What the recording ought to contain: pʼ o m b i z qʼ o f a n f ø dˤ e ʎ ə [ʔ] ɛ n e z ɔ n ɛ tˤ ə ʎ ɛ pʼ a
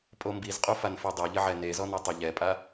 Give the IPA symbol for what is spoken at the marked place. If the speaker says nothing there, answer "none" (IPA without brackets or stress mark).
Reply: ʕ